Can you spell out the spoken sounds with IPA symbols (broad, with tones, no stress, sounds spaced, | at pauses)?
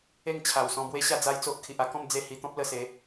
e˥˧ ŋ t͡ɕʰ a˨˩ w s ɔ̃˧ b w e˦ ɕ a˥˧ d͡z a˦ j t͡s o˦ ʔ kʰ i˨ ʔ a˧ k ɔ̃˥˧ m d͡z e˥˧ h i˧ t̪ ɔ̃˦ p̚ l ə˧ s e˨˦